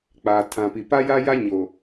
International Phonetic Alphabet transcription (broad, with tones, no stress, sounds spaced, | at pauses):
k͡p aː˨ tʰ ã˨ p i˨ p a˦ j a˦ j a˦ ɲ o˨